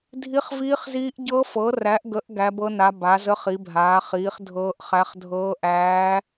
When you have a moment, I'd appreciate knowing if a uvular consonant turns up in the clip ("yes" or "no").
yes